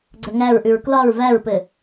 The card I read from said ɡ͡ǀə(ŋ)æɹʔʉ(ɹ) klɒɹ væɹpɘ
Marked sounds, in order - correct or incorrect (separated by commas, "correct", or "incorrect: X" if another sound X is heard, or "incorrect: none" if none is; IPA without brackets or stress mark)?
correct, correct